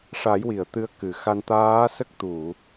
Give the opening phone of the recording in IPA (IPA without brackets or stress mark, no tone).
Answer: ʂ